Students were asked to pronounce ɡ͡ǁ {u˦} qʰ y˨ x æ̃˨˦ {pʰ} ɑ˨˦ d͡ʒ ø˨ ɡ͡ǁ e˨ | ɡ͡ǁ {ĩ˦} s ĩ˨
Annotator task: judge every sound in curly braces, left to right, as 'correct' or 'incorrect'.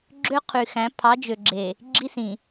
incorrect: ø˦, correct, incorrect: i˦

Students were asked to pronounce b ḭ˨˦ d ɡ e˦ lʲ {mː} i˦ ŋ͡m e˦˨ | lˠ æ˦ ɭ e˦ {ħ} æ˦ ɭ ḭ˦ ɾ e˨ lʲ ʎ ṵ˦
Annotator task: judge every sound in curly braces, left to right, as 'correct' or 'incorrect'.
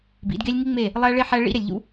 incorrect: ŋ, correct

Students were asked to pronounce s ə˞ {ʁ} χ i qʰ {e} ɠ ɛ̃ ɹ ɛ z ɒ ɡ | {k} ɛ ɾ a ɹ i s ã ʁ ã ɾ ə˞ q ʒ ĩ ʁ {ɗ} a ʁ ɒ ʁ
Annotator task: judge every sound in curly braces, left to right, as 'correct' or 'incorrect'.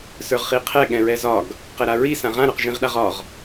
correct, incorrect: ɛ, incorrect: q, correct

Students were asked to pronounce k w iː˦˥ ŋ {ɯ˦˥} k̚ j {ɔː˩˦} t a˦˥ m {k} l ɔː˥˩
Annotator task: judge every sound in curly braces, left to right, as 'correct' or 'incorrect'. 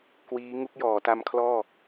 incorrect: u˦˥, correct, incorrect: kʰ

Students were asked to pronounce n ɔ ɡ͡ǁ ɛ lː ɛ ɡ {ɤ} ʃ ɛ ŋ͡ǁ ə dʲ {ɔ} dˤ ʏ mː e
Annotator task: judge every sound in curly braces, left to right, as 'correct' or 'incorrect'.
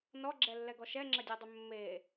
incorrect: ɔ, correct

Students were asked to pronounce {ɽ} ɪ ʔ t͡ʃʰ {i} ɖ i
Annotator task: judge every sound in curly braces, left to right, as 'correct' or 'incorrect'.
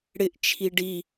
correct, correct

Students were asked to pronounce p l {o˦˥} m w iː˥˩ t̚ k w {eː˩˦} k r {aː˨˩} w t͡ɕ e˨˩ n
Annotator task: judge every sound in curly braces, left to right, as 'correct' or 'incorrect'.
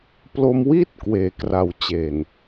incorrect: o˧, correct, incorrect: a˨˩

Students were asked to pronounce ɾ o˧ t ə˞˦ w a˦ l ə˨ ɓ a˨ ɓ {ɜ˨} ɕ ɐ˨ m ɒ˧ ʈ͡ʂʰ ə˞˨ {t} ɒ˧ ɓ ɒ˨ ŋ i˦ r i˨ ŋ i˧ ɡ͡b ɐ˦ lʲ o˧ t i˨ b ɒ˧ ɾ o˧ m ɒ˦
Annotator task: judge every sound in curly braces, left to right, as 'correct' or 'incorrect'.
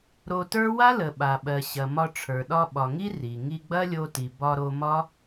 correct, incorrect: ɗ

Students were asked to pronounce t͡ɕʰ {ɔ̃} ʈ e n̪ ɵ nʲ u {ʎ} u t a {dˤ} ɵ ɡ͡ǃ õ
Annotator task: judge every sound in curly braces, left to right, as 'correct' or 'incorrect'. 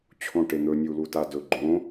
incorrect: õ, incorrect: l, incorrect: d

